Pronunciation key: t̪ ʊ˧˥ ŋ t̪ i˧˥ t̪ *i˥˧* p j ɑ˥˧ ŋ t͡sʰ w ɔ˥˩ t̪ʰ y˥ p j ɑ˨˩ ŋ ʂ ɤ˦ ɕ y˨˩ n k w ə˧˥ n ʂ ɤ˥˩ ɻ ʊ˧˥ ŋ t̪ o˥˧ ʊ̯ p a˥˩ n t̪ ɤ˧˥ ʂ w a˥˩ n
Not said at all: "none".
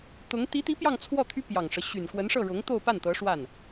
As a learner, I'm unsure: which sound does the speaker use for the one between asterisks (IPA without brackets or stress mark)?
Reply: i˧˥